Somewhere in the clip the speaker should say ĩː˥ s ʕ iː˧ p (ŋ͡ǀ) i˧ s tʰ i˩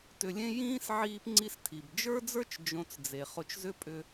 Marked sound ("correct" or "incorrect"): correct